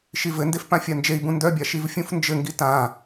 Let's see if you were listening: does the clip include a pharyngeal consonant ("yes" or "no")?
no